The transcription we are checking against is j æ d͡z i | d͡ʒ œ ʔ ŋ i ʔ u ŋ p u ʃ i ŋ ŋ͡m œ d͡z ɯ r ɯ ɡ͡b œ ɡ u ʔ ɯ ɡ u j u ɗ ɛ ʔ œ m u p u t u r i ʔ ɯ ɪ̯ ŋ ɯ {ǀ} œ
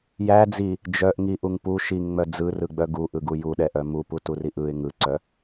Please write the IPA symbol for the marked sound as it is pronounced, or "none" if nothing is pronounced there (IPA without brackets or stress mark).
ǀ